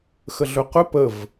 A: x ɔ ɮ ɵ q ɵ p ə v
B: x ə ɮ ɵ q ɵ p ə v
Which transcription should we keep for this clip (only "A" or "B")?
B